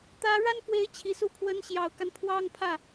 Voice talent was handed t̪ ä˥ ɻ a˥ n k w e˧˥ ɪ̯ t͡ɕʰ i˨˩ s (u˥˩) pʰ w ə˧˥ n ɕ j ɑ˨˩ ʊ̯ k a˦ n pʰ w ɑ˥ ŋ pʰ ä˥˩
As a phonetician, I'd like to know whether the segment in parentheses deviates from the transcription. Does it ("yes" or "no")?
yes